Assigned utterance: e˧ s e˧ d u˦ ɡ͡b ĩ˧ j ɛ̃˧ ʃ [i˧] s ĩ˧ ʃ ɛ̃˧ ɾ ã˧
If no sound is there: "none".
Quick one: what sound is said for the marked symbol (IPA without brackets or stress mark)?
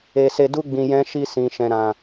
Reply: i˧